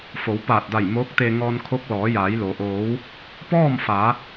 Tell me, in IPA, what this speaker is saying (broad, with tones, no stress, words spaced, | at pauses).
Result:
fo˩˧wpaː˧˩t̚da˧˩j moː˧˥k̚t̪e˧ ŋɔː˧nkʰo˧˥k̚ lɔː˩˧jaː˩˧jlo˩ ʔoː˩˧w | pɔː˥˨mfa˩˧